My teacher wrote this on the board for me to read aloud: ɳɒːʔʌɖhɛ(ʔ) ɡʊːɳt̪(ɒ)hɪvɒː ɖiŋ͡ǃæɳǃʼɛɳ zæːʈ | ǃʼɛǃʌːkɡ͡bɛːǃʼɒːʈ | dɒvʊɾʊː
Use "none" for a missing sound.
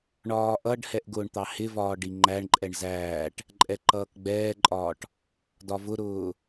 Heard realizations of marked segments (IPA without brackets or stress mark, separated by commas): ʔ, ɑ